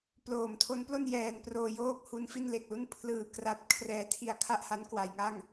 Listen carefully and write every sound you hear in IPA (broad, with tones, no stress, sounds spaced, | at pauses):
p l oː˨˩ m tʰ o˦˥ n p l o˥˩ n j ɛː˧ n p r oː˧ j oː˥˩ k̚ h u˧ n f i˥˩ n l e˨˩ k̚ l u˥˩ n pʰ l ɯː˧ k r a˦˥ t̚ kʰ r ɛː˧ tʰ i˧ a̯ kʰ a˥˩ ʔ h a˦˥ n k w a˩˦ j ŋ a˥˩ ŋ